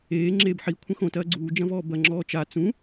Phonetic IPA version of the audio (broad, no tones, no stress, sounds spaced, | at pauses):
eː ŋ͡ǁ eː b ħ i kʷʰ ɐ̃ x õ t ɐː ɡ͡ǀ uː d͡ʒ ɐ̃ v ɔː b ɐ ŋ͡ǁ ɔː t͡ʃ a t͡s ũ